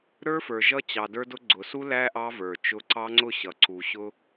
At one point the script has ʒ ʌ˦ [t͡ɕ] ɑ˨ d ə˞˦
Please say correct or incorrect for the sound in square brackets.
correct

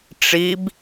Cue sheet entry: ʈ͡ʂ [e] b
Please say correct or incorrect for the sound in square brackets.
incorrect: i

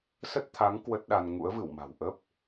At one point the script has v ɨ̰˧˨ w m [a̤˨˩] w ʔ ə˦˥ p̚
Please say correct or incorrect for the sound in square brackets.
correct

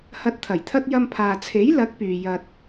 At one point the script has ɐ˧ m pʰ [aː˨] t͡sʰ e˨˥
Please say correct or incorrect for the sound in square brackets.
correct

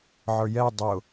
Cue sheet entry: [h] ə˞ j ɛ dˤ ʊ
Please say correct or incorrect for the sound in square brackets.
incorrect: ʕ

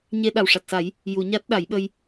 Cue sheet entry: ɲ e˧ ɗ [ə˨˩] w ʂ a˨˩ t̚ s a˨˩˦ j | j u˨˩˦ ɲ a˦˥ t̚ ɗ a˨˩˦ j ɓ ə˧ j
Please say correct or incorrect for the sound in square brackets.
incorrect: a˨˩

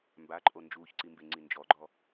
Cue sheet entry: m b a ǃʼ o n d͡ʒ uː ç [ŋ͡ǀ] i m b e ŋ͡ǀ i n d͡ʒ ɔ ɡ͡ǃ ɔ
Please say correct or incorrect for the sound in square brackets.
incorrect: ǀ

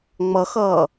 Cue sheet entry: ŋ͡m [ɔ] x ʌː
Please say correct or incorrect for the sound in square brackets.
incorrect: ʌ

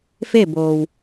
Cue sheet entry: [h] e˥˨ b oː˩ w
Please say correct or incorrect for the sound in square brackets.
incorrect: f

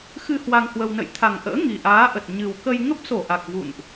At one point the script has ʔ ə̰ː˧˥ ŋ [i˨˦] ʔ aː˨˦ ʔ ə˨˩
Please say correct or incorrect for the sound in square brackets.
incorrect: i˨˩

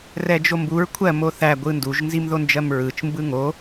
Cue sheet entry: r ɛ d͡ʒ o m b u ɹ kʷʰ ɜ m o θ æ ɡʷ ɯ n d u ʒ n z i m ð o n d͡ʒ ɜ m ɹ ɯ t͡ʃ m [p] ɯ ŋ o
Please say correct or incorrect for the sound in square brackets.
incorrect: b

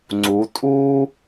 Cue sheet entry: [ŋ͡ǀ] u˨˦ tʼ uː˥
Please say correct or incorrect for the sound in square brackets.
correct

